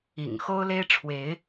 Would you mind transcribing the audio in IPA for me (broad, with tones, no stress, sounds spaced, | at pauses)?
ḭ˨˩ ŋ x o˦ ʊ̯ l e˦ ɪ̯ ʈ͡ʂʰ w e˨˦ ɪ̯